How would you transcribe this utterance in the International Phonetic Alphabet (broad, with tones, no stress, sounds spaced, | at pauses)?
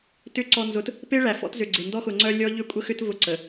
t ʏ˨˦ ǀ ɔ˨ n z ʊ˨ t | p e˦ ɭ æ˨ f ɔ̰˦ t z ʏ˨ ɡ͡ǀ e˨ n d ɔ˦ x ʊ˨ ŋ͡ǀ œ˦ lʲ ɔ˦ ʎ ʏ˦ kʷʼ ə˦ x ʏ˦ t v ʊ˦ ǀ ə˨